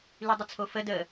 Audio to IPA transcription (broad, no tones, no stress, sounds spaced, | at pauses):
l y dˤ ʊ t͡sʰ o f ə d ə